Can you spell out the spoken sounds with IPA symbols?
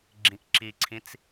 ɡ͡ǁ ĩ ʔ ǁ i ǀʰ ĩ t͡s

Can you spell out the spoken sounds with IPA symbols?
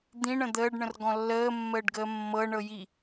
d̪ ĩ ɳ ə̃ d̪ əː ɖ ɳ ə̃ r ɡ ɔ̃ lː əː mː əː ɖ ɡ əː mː ɤ ɳ ɤ j i

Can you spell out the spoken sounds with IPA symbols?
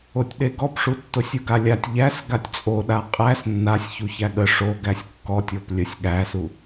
o tʲ ɗ e ɡ ɔ p ʂ u tː o sʲ u ɡ a lʲ a tʲ ʎ æ s ɡ a tʲ t͡sʼ o ɗ a qʼ æ s nː a sʲ ç u ç æ ɠ ə ʂ o ɡ æ sʲ kː ɔ tʲ ɔ p lʲ ə sʲ ɠ æ s u

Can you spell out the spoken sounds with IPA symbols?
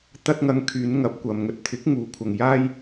t̪ ɐ˧ t̚ ŋ ɐ˨ ŋ kʰ yː˨˧ n ŋ ɐ˨˥ p̚ kʷ ɐ˨ m ŋ ɵ˧ t̚ t̪ʰ ɪ˨˥ k̚ ŋ uː˨ kʷʰ ɐ˨ ŋ j aː˥ j

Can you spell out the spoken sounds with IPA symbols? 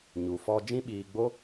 ɲ u˨ f ɔ˧ d͡ʒ ĩ˦ ɓ iː˧ ɡ͡b o˦

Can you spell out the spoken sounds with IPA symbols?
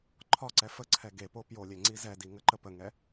ǃʰ ɒ ǀ ɛ f ə ǀʰ ɛ ɡ e p o p j o lʲ e ŋ͡ǀ i z ɛ d i ŋ ə ǃ ə p ə ŋ ɛ

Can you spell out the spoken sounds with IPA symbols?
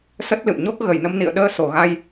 s ə˦˥ t̚ l ɨ̰˧˨ m ɲ o˦˥ k̚ ɣ ə˧˩ j n ə˧ m n ḭ˧˨ ə̯ ɗ əː˧ s o˧˩ ɣ a˧ j

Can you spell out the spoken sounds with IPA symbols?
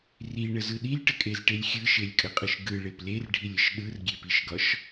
r i ɳ ə z ɯ ɗ i lʲ ʈ ə kʼ e z ʈ e lʲ xʲ ɯ ʃ e lʲ kʼ ə qʼ ɯ ʃ ɡ ɯ ɭ e p l e r ɖʱ i lʲ ə ʃ ɗ ɯ r ɡʲ e p i ʃ ɡ ɒ ʃ

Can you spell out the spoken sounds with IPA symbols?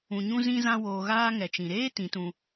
ũ˧ ɲ ũ˦ z ĩ˦ z ã˦ w oː˧ ɣ aː˦ ŋ ɛ˨ t͡ʃ ĩ˨ ɾ eː˦ t ĩ˨˦ t ũ˧

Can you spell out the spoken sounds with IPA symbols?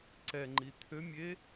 ǀ ɛ ŋ͡ǃ i t̪ʰ ø mʲ e

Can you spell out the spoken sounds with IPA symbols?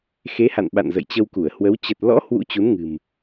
x e˨˦ h a̰˧˨ n ɓ a̰˧˨ n z ə̰˧˨ j t͡ɕ ə˧ w k u˧˩ ə̯ h w ə˨˦ w t͡ɕ ə˨˩ t̚ l ɔ̰˧˥ h w ṵ˧˥ t͡ɕ u˨˦ n ŋ ɨ̤˨˩ m

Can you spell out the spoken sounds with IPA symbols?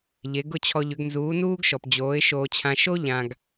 ʎ e˨˦ ɡ ʊ˦ t͡ɕʰ ɔ˧ ʎ ʏ˨˦ ɡ n z uː˨˦ n uː˦ ɡ ʃ ɔ˨ p d͡ʑ oː˨˦ ɪ̯ ʃ oː˧ t͡ɕʰ ã˧ ʃ o˦ ʎ ã˨ ɡ

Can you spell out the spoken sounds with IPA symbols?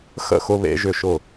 x ə̰˥˩ x ʊ˦˥ β ḛ˦˥ ʒ ʏ˥˩ ʃ ʊ˥˩

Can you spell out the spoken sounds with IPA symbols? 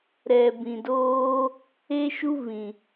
ɾ ɛ˨ b ĩ˨ d oː˧ | e˦ ʃ u˦ v ĩ˨

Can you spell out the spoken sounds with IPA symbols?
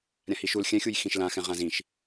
ɾʲ ã h i ʃ u l xʲ ɛ̃ xʲ u j x ĩ ʃ l ã x ɛ̃ ʁ ã z ĩ ʃ

